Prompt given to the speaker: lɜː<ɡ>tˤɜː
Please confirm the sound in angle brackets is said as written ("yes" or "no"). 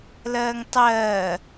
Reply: no